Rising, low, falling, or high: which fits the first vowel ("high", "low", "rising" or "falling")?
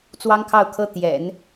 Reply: high